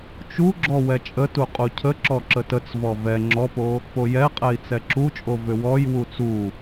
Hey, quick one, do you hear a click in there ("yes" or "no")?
yes